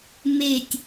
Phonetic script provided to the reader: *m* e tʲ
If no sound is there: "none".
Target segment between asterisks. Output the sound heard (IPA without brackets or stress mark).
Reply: m